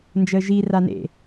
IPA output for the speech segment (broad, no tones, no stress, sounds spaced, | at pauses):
n d͡ʒ əː ʒ i r a n ḛ